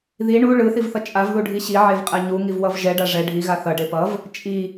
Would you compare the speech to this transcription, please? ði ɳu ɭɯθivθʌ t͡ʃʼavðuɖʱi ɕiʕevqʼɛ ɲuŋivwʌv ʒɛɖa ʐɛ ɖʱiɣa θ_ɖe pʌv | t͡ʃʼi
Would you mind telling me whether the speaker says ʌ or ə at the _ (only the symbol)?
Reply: ʌ